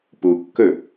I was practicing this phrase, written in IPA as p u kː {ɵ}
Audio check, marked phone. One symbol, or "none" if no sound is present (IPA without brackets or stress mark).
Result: ɵ